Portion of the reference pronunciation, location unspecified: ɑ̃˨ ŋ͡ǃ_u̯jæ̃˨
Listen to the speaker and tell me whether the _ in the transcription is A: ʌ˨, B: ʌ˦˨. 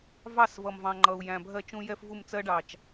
A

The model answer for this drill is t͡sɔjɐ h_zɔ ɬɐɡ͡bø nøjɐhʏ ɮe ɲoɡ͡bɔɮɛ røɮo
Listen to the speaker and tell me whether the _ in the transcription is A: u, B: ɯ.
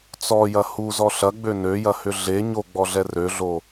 A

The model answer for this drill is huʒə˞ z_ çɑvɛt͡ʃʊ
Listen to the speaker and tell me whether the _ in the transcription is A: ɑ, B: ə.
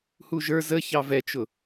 B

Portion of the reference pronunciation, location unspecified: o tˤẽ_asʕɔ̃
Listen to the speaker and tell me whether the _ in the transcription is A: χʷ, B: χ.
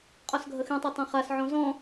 B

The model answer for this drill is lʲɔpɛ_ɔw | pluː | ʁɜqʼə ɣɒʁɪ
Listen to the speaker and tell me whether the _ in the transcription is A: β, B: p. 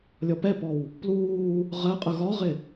B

